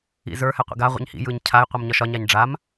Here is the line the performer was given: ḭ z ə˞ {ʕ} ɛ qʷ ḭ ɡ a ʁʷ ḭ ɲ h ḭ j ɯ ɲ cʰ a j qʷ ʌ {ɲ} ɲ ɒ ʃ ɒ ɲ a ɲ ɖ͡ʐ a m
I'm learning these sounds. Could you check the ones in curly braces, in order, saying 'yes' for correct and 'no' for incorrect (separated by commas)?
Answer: no, no